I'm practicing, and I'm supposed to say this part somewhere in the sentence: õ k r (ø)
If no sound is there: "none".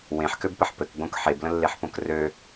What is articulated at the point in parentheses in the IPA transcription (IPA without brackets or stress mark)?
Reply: ø